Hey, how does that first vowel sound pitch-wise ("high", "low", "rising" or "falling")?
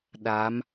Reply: rising